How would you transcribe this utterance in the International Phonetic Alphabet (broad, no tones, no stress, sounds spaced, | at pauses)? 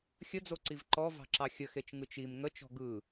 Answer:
xʲ ə d͡z o ǀ i v ǃ ɔ v ɑ̤ ǁ ɑ xʲ ə x e t͡ʃ ŋ ɯ t͡ʃ i m ŋ ə t͡ʃ ɔ̤ ɡ ɯ